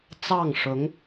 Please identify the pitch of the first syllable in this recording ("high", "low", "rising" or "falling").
falling